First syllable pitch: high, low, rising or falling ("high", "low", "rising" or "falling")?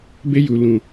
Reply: high